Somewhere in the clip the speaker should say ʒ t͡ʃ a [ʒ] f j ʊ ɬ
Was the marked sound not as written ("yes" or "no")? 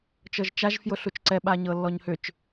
no